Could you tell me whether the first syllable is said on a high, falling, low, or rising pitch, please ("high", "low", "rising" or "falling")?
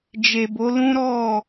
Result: low